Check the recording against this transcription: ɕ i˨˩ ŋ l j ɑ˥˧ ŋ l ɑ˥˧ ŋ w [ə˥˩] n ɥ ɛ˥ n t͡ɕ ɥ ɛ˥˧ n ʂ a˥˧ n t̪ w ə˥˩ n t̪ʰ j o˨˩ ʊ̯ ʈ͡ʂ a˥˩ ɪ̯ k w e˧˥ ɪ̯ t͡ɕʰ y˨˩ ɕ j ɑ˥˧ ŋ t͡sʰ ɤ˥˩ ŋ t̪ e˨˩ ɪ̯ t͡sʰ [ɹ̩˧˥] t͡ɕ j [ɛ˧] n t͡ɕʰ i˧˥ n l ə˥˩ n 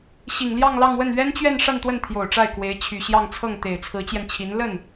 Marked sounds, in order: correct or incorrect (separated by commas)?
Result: correct, correct, correct